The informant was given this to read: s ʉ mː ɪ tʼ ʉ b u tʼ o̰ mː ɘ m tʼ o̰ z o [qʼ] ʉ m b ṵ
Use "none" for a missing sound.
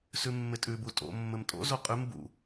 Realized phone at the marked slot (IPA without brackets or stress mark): qʼ